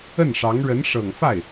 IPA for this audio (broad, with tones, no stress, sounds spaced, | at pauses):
ə˥˩ n ʂ ɑ˧˥ ŋ ɻ ə˧˥ n ʂ ɤ˨˩ ŋ f a˥˩ ɪ̯